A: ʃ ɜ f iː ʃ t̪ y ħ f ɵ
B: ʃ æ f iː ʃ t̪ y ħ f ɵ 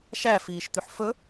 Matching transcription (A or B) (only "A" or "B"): B